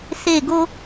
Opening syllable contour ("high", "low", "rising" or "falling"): falling